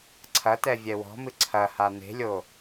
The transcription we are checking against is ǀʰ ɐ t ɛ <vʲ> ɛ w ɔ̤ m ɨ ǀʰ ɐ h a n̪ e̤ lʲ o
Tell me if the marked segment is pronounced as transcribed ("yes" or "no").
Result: yes